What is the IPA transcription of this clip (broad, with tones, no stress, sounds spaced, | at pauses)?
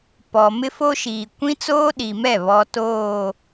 p ɔ˨ m ɪ˦ f o˦ ʃ iː˨ kʷ ĩ˦ t͡s oː˦ ɗ i˨ m ɛ˦˨ β ɔ˦ t oː˦˨